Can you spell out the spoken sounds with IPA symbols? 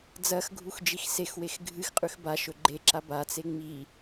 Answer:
d͡z ɐ x ɡʱ u x d͡ʒ i x s e x w e x ɡʱ ɨ x qʼ ʉ x b a ʃ ɵ ɡ͡ǃ e ǁ a b a t͡s e ŋ͡m i

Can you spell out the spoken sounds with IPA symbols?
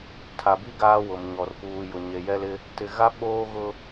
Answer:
tʰ a˨ b i˦ ɡ aː˦ w ʊ˨ m ɲ ɔ˨ r p uː˨ j ʊ˨ ɲ e˨ j ɛ˦ l ɪ˦ | t ɪ˨ ɣ a˦ ɓ oː˦ ɣ ʊ˦

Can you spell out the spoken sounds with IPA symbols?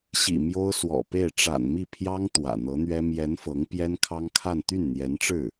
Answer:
ɕ ḭ˨˩ m j o˥ ʊ̯ s w ɔ̰˨˩ p e˥˩ ɪ̯ ʈ͡ʂ a̰˨˩ n m i˥˩ pʰ j ɑ˥ ŋ t̪ w ä̰˨˩ n̪ ɤ˧˥ n̪ ɥ ɛ˥ m j ɛ˧˥ n f ɤ˧˥ ŋ p j ɛ˥ n kʰ ɑ˥ ŋ kʰ a˥˧ n t̪ y˥˩ n n̪ j ɛ˧˥ n ʈ͡ʂ ɻ̩˥˩

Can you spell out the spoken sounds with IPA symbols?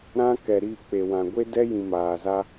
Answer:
ɾ ã˦ k ɛ˨ ɾ iː˦˨ k͡p e˨ w ã˨ ɡʷ e˦ d ɛ˦ j ĩ˨ m aː˨ z a˦

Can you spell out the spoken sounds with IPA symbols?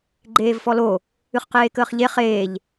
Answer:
ɡ͡ǃ eː v f ɔ l o | ɨ χ q eː k əː χ ʎ e χ eː ʎ

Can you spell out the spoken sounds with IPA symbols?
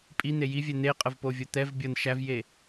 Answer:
pʼ i n̪ e j i vʲ ɛ n̪ e qʼ ə v p o vʲ o t̪ ɛ v bʲ ɤ n ʃ æ v j e

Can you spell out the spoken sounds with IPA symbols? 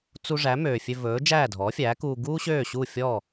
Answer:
t͡s u˧ ʐ æ˩˥ m øː˩ fʲ ø˧ v ɵː˩˥ d͡ʒ æː˥˩ dʱ ɔː˩˥ fʲ æː˩˥ k uː˧ ɡ uː˥ ɕ øː˥˩ ɕ u˥˩ fʲ ɔ˥˩

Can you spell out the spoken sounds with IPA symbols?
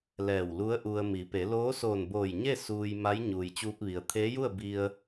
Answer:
l ɛː˧˩ w l u˧˥ ə̯ ʔ u˧ ə̯ m i˩˧ p e˩˧ l oː˧˥ s oː˧˩ n b oː˧˩ j ɲ e˥˨ s uː˧ j m a˧˥ j ɲ uː˩ j t͡ɕ uː˧ p̚ ʋ i˩ ə̯ t̪ʰ eː˧˥ j u˥˨ ə̯ b i˧ ə̯

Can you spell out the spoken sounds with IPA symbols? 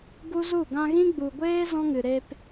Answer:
ɡ u˦ z u˦˨ ɡ ã˧ ɣ ĩ˦ ɡ͡b u˨ ɡʷ eː˦ z ɔ̃˦ ŋ ɨ˨ ɾ e˧ p

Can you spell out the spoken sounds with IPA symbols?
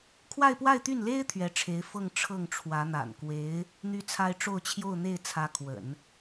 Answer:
kʰ w a˥˧ ɪ̯ p w a˥˧ ɪ̯ t̪ y˥˩ n l e˥ ɪ̯ t̪ʰ ɥ ɛ˧˥ ʈ͡ʂʰ e˧˥ ɪ̯ f ɤ˥˧ ŋ ʈ͡ʂʰ ɤ˥˩ ŋ ʈ͡ʂʰ w ä˧˥ n̪ a̰˨˩ n k w e˧˥ ɪ̯ | n̪ y˥ t͡sʰ a˥ ɪ̯ ʈ͡ʂ o˥˧ ʊ̯ t͡ɕʰ j o˥˧ ʊ̯ n̪ e˥˩ ɪ̯ t͡sʰ ä˧˥ kʰ w ə̰˨˩˦ n

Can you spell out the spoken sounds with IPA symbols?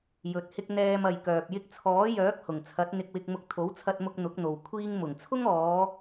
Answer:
j ɵ˨ t̚ h ɪ˧ k̚ n̪ ɛː˧ m ɐ˨ j k œː˨ p̚ j ɪ˧ k̚ t͡sʰ ɔː˨˥ j œː˨˥ k̚ h ʊ˨˩ ŋ t͡sʰ ɐ˨˥ t̚ n̪ ɪ˧ k̚ w ɪ˧ k̚ m ʊ˧ k̚ t̪ʰ o˨˥ w t͡sʰ ɐ˧ t̚ m ʊ˧ k̚ n̪ ʊ˨˥ k̚ n̪ o˨ w kʷʰ iː˧ ŋ m ʊ˨˩ ŋ t͡sʰ ʊ˥ ŋ ɔː˨˧

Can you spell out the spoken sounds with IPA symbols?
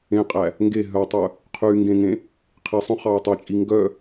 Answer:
ẽ qʼ æ | ŋ ɡ e ɦ œ tˤ œ | qʰ y ŋ ɡ ẽ ŋ ẽ | qʰ i sˤ œ̃ χ ɑ e̯ tˤ i t͡ʃʼ i ŋ ɡ œ

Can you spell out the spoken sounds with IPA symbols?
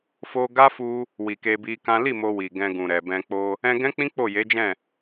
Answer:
f o˧ ɡ a˦ f u˧ | w i˨ k e˧ b i˧ k ã˦ l i˦˨ m o˧ w i˨ ɡ ɛ̃˧ ɡ ũ˨ ɾ ɛ˨ b ɛ̃˧ k͡p o˧ | ɛ̃˧ ɡ ɛ̃˦ k͡p ĩ˦ k͡p o˦˨ j e˨˦ d͡ʒ ɛ̃˦˨

